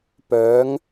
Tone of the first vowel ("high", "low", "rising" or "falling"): rising